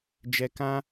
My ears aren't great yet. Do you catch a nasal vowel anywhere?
yes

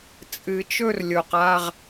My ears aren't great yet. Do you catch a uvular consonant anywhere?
yes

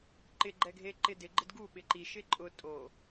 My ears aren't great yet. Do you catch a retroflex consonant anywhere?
no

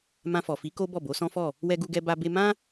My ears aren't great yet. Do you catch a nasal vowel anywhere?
yes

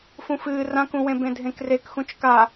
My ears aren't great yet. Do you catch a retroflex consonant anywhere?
no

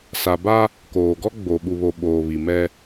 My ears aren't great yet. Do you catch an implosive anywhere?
yes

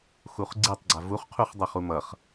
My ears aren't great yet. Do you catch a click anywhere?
yes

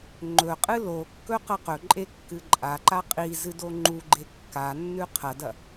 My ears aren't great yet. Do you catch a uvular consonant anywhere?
yes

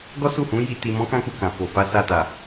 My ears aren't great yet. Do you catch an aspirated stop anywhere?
no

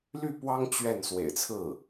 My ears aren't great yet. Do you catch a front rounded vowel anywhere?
yes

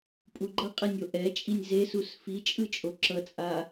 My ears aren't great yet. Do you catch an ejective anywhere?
yes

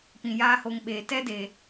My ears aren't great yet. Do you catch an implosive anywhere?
yes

